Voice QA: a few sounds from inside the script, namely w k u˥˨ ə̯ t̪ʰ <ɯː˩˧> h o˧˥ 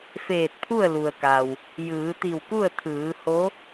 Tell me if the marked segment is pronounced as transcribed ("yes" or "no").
yes